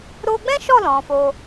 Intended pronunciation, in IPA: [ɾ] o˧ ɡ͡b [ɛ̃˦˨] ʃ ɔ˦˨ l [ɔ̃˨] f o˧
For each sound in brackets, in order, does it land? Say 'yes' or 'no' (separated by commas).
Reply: yes, no, yes